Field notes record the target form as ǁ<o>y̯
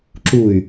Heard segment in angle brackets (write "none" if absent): u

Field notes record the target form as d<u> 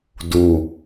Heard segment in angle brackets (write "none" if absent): u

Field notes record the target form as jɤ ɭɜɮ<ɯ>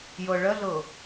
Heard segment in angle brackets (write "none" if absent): ɤ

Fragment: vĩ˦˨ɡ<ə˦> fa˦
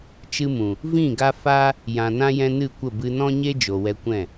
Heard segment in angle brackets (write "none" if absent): a˦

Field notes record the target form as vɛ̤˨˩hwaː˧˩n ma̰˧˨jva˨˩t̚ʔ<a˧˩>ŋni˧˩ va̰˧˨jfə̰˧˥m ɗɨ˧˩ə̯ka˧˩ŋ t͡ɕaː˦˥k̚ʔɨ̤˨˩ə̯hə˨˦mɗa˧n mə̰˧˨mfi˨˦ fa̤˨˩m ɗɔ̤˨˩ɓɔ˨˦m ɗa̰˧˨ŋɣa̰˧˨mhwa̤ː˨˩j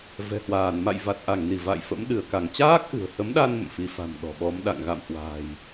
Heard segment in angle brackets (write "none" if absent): a˧˩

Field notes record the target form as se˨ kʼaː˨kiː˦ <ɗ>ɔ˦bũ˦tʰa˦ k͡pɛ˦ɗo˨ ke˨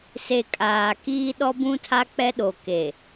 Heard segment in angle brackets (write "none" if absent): ɗ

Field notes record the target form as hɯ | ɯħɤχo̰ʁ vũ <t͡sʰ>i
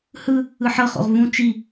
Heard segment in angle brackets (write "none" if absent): t͡ʃ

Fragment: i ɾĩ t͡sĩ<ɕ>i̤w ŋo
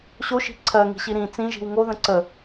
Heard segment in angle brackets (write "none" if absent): ʒ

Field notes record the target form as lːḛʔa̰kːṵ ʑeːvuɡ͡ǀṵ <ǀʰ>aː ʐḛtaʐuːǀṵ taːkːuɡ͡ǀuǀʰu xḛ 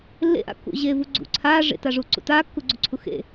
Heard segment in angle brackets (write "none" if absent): ǀʰ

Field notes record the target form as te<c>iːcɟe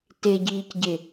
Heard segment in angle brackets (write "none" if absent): ɟ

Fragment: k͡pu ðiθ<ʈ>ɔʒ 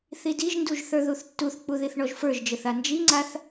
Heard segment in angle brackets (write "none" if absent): ɳ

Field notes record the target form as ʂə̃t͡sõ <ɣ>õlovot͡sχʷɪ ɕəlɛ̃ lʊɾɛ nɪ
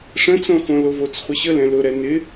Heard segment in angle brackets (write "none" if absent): x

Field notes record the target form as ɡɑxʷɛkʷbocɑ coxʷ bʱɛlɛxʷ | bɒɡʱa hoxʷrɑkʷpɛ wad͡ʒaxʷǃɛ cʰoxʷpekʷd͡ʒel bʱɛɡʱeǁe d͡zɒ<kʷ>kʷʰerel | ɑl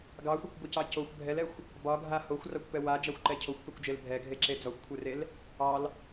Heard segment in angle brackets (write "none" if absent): xʷ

